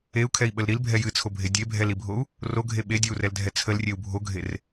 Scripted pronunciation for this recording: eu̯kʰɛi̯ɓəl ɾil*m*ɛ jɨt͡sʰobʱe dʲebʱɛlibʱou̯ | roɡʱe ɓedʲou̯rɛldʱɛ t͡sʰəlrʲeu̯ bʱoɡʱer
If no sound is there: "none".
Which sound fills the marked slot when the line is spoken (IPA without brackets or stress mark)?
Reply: bʱ